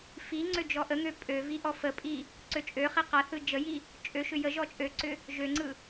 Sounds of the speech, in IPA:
f i ŋ͡ǀ ø d͡ʒ ɔ ʔ ə ŋ ø pʼ ø v i ʔ ɔ f ə pʼ i | ǀ ø t͡ʃʼ ø χ i q a θ ɯ d͡ʒ ə j i | t͡ʃʼ ø ʃ ʏ j ə ʒ ɔ t͡ʃʼ ø ǀ ʏ | ʒ ø ŋ͡ǀ ɯ

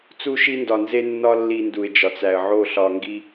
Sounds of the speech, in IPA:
t͡s u˧ ʃ i˧ n d ɒ˨ n z e˦ nː ɒ˦ lː i˧ n d u˨ ɪ̯ d͡ʒ ɒ˨ t͡s æ˨ ə̯ ʕ o˦˨ ɬ ɒ˧ ŋ ɡ i˦

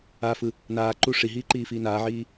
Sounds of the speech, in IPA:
a f ɯ | n aː ǃ u ʂ i ɦ iː ǃ iː f iː n aː ʕ iː

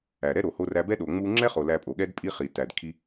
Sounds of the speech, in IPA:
æ˨ ɾ ɛ˦ ɾ o˨ h o˧ r æ˧ b ɛ˦ ɗ o˨ ŋ͡m u˧ ŋ͡ǁ ɛ˦ χ o˨ l æ˧ pʼ o˨ ɠ ɛ˦ d pʼ i˦ χ i˨ t æ˨ d kʰ i˧

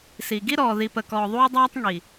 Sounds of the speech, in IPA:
s i˨ ɡ i˦ ɾ ɔː˨ ð i˨ p ə˨ k ɔː˨ ðˤ uː˦ dˤ æː˦ tˤ ŋ i˨

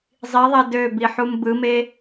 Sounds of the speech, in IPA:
zˤ i ðˤ e d ø b i ħ u m b ɯ m e

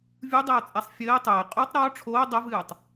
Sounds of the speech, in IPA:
vʲ u dˤ ɛ o̯ t͡sʼ ɛ sˤ fʲ ɘː tˤ ɘː qʼ u tˤ ɾ ɔ ʈ͡ʂʰ oː dˤ ɘ v ɨː tˤ

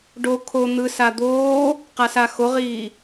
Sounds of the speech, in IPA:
ɖ o kʰ o n̪ ɯ s a d̪ oː | q a s a x o ʁ iː

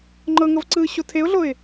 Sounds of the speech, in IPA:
ŋ͡ǃ ɤ ŋ ɤ v ǀ ɯː ɕ o tʰ e ʊ̯ ɮ o ɪ̯

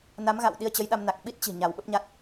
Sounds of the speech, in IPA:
n a˨˦ m ɣ a̰˧˨ w ɗ i˧ ə̯ t͡ɕ ə˨˦ j ɗ a˧ m n a˨˩ k̚ ɓ i˦˥ t̚ t͡ɕ i̤˨˩ ɲ a˧˩ w ɓ ə˦˥ p̚ ɲ a˦˥ t̚

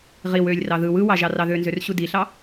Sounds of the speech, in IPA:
ʁ i w ø lʲ r ɑ ð ɯ w ɯ w ɑ ʒ ɑ r ɑ ð ø n z ø r ɕ u d i ɬ ɑ

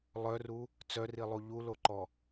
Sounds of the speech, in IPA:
lˠ œ r u | t͡s œ r i lˠ u ʎ u l o ǃ ɔ

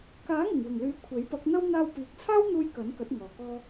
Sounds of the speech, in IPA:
k aː˨˥ ŋ ɪ˨˩ ŋ w ɪ˨˩ ŋ l yː˨˥ kʷʰ e˨˥ j p ɐ˨˥ k̚ n̪ ɐ˥ w n̪ aː˧ w p iː˨ k̚ t͡sʰ aː˥ w n̪ uː˧ j k ɐ˨˥ n k ɐ˨˥ t̚ ŋ ɔː˨ k ɔː˥

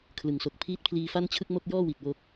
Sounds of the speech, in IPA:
kʰ l ɯ˩˦ ŋ s o˨˩ k̚ pʰ iː˦˥ t̚ pʰ l iː˧ f a˥˩ n t͡ɕʰ ɯ˥˩ k̚ m o˥˩ k̚ j ɔː˥˩ w i˨˩ t̚ w o˦˥ k̚

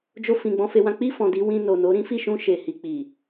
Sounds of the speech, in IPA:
d͡ʒ o˧ f ĩ˨ ɡ͡b ɔ̃˧ f e˧ w ã˦ k͡p i˦˨ f ɔ̃˨ d i˨˦ w ĩ˧ n o˨ n o˨˦ ɾ ĩ˦ f i˦˨ ʃ ũ˧ ʃ e˨ h i˨ k͡p i˨

